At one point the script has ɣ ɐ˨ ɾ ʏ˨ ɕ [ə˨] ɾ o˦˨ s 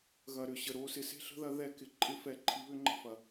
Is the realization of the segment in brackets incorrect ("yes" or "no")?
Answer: no